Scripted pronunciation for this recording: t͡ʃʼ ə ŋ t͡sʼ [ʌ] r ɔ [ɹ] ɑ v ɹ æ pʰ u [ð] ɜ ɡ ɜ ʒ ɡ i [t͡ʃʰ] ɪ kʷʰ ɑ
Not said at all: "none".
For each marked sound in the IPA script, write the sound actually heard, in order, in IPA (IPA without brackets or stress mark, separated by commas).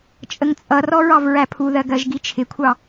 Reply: ʌ, ɹ, ð, t͡ʃʰ